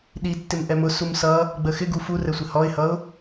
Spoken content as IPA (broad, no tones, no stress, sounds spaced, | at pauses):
ɗ i tː ɪ m ʔ ɛ m ʊ s u m s ʌ | ɡ͡b ə x ɪ ɡ u f u r ɛ sʷ ɪ h ɔ ɪ̯ h ʌ ʊ̯